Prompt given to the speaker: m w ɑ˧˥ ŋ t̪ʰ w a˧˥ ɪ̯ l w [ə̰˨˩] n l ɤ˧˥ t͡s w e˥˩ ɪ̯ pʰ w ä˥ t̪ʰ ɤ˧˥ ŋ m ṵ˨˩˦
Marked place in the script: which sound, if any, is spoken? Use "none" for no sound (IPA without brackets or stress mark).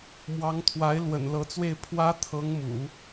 ə̰˨˩